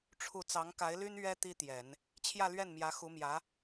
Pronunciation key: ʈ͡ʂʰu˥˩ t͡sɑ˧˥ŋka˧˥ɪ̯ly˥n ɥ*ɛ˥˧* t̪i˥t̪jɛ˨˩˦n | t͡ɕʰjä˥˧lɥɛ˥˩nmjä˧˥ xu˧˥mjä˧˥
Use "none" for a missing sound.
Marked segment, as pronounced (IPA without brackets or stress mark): ɛ˥